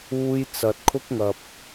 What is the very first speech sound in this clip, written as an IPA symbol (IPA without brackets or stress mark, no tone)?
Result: uː